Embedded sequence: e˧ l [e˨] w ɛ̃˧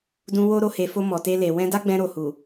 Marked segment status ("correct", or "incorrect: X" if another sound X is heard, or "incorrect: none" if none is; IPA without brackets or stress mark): correct